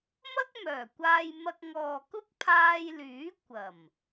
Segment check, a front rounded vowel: present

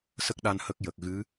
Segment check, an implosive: present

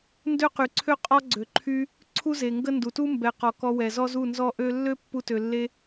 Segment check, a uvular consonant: present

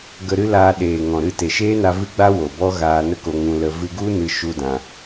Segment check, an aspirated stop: absent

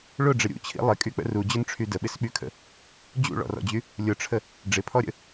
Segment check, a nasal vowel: absent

